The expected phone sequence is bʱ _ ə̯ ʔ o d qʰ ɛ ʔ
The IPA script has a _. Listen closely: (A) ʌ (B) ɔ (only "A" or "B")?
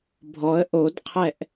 B